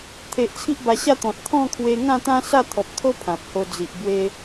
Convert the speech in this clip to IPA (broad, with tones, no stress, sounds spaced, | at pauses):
t̪ʰ e˨ ʔ t͡sʰ i˦ ʔ b a˧ ɕ a˥˧ t̪ ɔ̃˨ t̚ t̪ʰ ɔ̃˥˧ kʰ w e˧ ŋ ã˥˧ t̪ ã˦ s a˥˧ t̪ʰ ɔ˨ p̚ t̪ʰ o˦ pʰ ã˨ p̚ h o˧ d͡z i˨ ʔ b w e˧